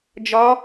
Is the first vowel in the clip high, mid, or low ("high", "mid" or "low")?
low